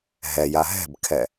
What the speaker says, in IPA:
ɦɛja ɦɛ̤bkʰɛ

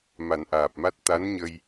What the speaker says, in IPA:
ma˨˩˦nʔaː˨˩p̚ma˦˥t̚ t̪a˧˥nɲə˧j

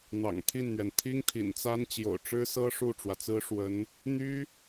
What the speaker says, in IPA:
n̪ɑ̰˨˩ŋt̪ʰi˥˩nn̪ɥɛ˩n t̪ʰi˥ŋt̪ʰḭ˨˩nt͡sa˥n t͡ɕjo̰˨˩ʊ̯ʈ͡ʂɻ̩˥sɤ˥ ʂu˥˩ʈ͡ʂwä˩t͡sɹ̩˥ʂwə˧˥n | n̪y˥

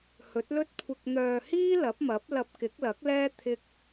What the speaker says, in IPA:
hɵ˨˥t̚lɵ˥t̚ kʷʰɪ˨k̚n̪œː˨hiː˥ lɐ˨˥p̚mɐ˨˥p̚ lɐ˧p̚kɪ˨˥k̚lɐ˨˥k̚lɛː˥ t̪ʰɪ˧k̚

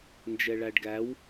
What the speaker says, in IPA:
nd͡ʒɛɭæɖɡæw

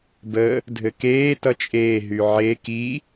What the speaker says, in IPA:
bə | dʱɘkeː tʌt͡ʃʼeː ɦyʕe ki

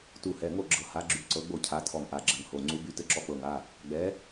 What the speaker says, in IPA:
tu˧˩hɛ˩˧˩ŋo˥˩ ɡ͡ǁɤ˧˩ha˨˥ɡ͡ǁy˧˩ ǀɤ˨˥ɡ͡bo˥˩cʰa˨˥ tʰɔ˧˩ŋʔa˩˧˩ɡ͡ǁɘ˧˩ŋ ho˩˧˩ ŋ͡ǀu˨˥by˨˥ tɘ˨˥ǁɔ˨˥k͡pɤ˩˧˩ŋa˩˧˩ | ɡ͡bɛ˨˥

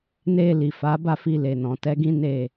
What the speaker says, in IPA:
ne˧li˨ fa˨˦ba˦˨ fi˧le˨nɔ̃˨tɛ˨˦ ɡĩ˦ne˦˨

